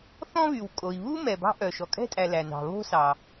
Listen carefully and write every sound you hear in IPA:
θɔ̃˥βy˩wkʼo˩i̯ βu˥ mɛ˩bɑ̤˦ ʔœ˩ʃɔ˩kʼɛ̤˥ tʼæ˨læ˩nɑ̤˩ βo̤˥sɑ˩

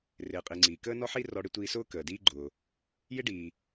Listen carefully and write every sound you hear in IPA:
rɪː˩qʼi˩ ŋ͡ǀiː˩kəː˥nɔ˥ħi˥ rɔ˧ɽɪ˥tʷiː˧sʊː˥ kəː˩diː˥ ɡ͡ǃʊː˩ | jɪ˥ɖiː˩

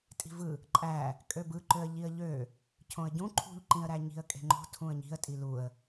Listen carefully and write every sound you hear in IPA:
tʼi̤vɯ | ǃʼæ | kʼøbɯǃøə̯ ʎiə̯ʎø | cʰõə̯ɟũ ǃʰṳʎǃĩə̯ɾæɲi̤ə̯ kʼe̤ŋ͡ǃo̤ tʰũə̯ɲi̤ə̯ tʼiluə̯

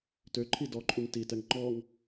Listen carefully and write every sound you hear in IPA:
tøǃʰi dɔǃʼuŋ titɛŋ ŋ͡ǃɔŋ

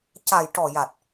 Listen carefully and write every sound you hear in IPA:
ca˨˩jʈɔ˨˩ja˨˩t̚

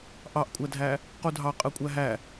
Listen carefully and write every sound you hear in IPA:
ʔɑʔkʷʼædʱæ | qudʱɑqʼɯkʷʼæ ɦæ

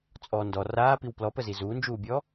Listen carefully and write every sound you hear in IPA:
t͡sʼɔ ndɔ raːpiw plɔpəzi zuːnd͡ʒuːbʲɔ

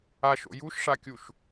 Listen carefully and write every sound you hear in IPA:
aʃo̰ juʃʂakʲuʃ

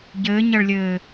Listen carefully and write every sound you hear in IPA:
ɟɘːɲɐɭlʲɘː

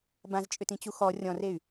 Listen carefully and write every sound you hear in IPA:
bãzt͡ʃʼʏtĩt͡ɕu xɔ rʲɔ̃rey̯

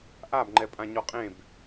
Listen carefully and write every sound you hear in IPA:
ʔabŋ͡ǃɛpʼã ɲɔqʼẽb

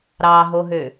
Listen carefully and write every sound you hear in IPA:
ɾɑɦoɦø

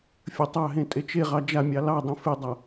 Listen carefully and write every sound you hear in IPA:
fʲə tˤɑɦẽ tʼet͡ʃeʁɑ d͡ʒamʲɑ lɑdˤɛ̃ fedˤa

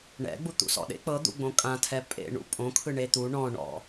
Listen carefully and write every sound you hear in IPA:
ɳɛ̰ɡ͡bu t̪ṵsɔ̰ɗḛ k͡pɤd̪ṵ ɡ͡bõkʼãtʰɛ pʼḛ ɳṵpʼõkʰɯ ɳet̪u ɳɔ̃ɳɔ̰

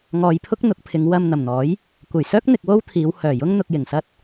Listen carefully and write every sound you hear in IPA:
ŋɔː˨jpʰʊ˥k̚ n̪ʊ˨˥k̚pʰɪ˨˧ŋ wɐ˧mn̪ɐ˨˩mn̪ɔː˨˥j | kʷɐ˨˩jsœː˥k̚ n̪ɪ˧k̚wo˥wt̪ʰiː˨˧w hœː˨˩jʊ˥ŋn̪ʊ˧k̚ jɪ˨˩ŋsɐ˥t̚

